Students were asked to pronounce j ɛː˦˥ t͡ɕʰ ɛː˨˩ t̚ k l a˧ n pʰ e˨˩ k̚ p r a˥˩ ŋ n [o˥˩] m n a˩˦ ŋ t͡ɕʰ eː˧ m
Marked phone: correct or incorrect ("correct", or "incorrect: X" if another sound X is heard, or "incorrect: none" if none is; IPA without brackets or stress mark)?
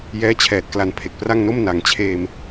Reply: correct